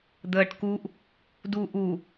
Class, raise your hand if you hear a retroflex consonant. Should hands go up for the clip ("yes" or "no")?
yes